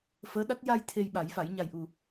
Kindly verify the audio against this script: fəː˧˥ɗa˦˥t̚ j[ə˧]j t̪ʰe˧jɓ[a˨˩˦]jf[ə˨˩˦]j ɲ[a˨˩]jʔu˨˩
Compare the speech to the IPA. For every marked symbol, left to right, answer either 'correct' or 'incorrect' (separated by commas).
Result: incorrect, correct, incorrect, correct